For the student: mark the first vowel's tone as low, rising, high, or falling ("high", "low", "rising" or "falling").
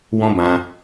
high